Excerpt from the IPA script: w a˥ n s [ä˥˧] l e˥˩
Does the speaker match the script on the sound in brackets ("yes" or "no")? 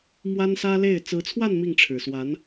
no